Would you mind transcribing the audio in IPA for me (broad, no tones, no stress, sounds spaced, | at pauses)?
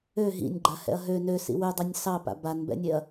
ø ɦ ḭ nʲ ɡ͡ǃ a h ɛ̰ ɐ̯ ɦ ø n ø s ḭ w ø dˤ ø nʲ s ɑ p a̰ b a n b ɛ̰ nʲ e ɐ̯